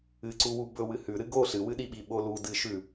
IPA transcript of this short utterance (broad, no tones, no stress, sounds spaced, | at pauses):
ɨ ǀ u w u b ɵ w ɨ h ʉ ɾ ɨ ɡ o ɬ ɨ w ɨ ɗ i ɓ i ɓ o l u d ɨ ʃ ʉ